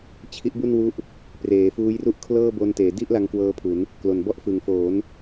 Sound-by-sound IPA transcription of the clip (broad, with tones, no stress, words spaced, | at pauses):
t͡ɕʰi˦˥ʔbu˥˩nwu˦˥ʔ | preː˩˦fuː˦˥jru˥˩ʔ kʰlɤː˥˩bo˧n teː˩˦di˥˩ʔla˧ŋ kwɤː˦˥pʰu˩˦n | klo˨˩nbɔ˥˩ʔ fɯ˩˦ŋfo˩˦n